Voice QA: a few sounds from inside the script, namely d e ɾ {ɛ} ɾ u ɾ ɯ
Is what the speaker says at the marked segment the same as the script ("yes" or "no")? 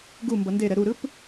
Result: yes